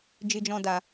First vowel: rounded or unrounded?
unrounded